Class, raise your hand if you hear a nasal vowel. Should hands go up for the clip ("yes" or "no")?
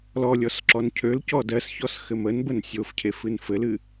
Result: no